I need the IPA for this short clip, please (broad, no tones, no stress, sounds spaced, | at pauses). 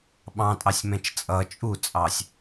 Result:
ɓ ɑ̃ tʼ ɑ sʲ m ɛ̃ t͡ʃ t͡sʼ ʌ t͡ʃʼ u t͡sʼ ɑ sʲ